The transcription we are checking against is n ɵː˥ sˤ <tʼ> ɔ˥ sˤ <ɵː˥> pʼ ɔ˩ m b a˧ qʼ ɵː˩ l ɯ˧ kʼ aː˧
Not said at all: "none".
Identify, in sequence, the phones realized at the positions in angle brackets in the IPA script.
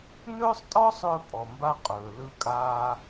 tʼ, ɵː˧

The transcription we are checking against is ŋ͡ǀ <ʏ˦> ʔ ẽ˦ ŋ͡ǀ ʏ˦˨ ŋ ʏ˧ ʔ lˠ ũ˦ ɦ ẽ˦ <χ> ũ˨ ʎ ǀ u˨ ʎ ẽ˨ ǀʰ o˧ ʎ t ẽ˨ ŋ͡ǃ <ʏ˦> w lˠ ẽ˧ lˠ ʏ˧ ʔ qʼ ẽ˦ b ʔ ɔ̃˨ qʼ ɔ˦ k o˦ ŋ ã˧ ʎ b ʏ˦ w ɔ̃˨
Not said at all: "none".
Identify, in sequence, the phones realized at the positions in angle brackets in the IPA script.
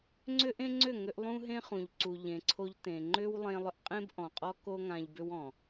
ʏ˦, χ, ʏ˦

